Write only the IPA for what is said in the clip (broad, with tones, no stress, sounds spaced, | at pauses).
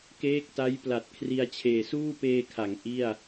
k eː˦˥ k̚ t a˦˥ j p l a˨˩ t̚ kʰ r i˧ a̯ t͡ɕʰ eː˨˩ s uː˥˩ p eː˧ kʰ a˩˦ ŋ ʔ i˥˩ a̯